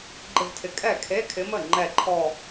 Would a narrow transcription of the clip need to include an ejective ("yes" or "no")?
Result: yes